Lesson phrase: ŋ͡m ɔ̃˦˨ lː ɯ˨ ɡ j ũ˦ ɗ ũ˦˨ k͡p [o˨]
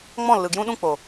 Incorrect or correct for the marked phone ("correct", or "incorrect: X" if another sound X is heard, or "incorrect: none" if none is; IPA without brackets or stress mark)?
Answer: correct